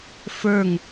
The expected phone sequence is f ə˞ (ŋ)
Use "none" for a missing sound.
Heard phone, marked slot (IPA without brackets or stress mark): ŋ